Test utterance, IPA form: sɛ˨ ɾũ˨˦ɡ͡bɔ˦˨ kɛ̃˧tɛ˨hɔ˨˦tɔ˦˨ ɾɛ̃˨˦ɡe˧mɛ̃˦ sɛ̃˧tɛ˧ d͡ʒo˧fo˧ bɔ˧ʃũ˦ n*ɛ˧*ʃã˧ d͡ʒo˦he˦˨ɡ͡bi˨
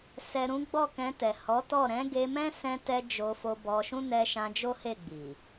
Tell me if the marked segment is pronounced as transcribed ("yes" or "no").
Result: yes